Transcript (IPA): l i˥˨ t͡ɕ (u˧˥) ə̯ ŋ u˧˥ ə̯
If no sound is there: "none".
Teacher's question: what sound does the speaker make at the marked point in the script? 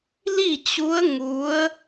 u˧˥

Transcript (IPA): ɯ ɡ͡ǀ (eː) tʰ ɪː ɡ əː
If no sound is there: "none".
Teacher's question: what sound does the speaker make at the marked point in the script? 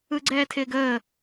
ɛː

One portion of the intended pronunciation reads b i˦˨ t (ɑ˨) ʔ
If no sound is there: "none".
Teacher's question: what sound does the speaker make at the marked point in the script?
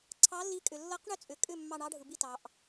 ɑ˨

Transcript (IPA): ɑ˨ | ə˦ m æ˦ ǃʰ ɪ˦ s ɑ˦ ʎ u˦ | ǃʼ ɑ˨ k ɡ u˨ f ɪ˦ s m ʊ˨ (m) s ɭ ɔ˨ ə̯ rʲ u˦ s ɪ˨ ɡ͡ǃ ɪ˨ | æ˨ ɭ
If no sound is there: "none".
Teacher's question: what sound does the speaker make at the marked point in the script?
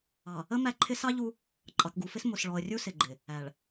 none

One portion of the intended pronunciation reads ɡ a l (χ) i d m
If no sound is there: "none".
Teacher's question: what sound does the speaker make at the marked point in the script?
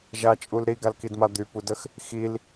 k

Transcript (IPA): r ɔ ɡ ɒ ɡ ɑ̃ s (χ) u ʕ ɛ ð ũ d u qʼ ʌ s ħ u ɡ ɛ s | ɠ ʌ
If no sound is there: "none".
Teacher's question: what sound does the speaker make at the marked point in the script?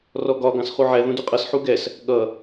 χ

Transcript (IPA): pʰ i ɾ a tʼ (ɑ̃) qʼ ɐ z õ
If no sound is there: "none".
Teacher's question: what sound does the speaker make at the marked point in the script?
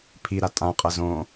ã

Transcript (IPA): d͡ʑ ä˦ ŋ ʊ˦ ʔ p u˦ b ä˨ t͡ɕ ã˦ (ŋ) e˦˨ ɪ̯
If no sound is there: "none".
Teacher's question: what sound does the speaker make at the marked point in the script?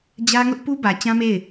m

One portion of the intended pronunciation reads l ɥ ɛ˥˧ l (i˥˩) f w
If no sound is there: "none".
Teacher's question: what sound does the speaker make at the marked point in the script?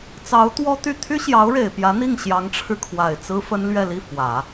i˥˩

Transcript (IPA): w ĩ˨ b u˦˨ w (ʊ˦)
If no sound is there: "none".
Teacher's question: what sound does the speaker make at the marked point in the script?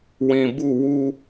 u˦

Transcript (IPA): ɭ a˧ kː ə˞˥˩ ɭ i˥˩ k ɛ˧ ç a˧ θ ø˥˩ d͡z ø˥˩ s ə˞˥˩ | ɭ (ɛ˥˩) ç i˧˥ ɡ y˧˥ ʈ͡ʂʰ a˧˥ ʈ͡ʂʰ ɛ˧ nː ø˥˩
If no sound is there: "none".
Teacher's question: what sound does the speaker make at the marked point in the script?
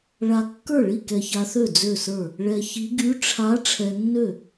ɛ˧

